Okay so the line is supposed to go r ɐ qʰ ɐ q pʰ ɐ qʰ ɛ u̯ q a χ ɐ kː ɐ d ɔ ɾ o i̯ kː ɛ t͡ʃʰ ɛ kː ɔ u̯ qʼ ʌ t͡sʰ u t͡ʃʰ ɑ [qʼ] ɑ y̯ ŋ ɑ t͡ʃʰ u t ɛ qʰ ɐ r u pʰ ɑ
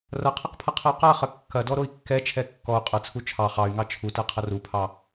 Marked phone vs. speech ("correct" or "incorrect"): incorrect